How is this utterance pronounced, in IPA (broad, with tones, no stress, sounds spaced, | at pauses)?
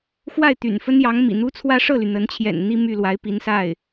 x w a˥˩ ɪ̯ t̪ y̰˨˩ n f ə˥ n j ɑ˧˥ ŋ m ḭ˨˩ n̪ u˥ t͡sʰ w ä˥ ʂ ɤ˥˩ l y˩ n̪ ə˧˥ n t͡ɕʰ j ɛ̰˨˩ n n̪ i˥˧ m y˥˩ l w a˧˥ ɪ̯ p i˧˥ n s a˥˩ ɪ̯